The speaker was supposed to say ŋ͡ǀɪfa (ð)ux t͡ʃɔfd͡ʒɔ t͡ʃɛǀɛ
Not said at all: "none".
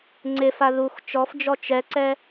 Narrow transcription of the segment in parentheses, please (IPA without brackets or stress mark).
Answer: ð